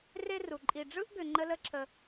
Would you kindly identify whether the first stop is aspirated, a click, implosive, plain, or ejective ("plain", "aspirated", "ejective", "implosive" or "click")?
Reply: click